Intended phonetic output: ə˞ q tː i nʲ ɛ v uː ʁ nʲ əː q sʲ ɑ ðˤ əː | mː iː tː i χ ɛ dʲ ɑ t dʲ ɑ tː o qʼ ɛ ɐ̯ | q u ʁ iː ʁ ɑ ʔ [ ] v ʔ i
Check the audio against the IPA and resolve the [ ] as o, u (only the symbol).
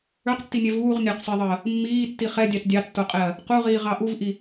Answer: u